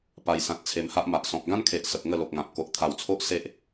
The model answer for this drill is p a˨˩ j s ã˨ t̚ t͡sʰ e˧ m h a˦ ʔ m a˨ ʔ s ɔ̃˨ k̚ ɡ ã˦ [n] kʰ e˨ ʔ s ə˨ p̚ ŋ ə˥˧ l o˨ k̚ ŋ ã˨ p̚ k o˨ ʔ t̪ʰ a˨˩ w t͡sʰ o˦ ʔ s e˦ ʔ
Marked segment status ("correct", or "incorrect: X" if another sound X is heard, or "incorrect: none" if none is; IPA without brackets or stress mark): correct